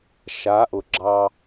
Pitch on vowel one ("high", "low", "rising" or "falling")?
rising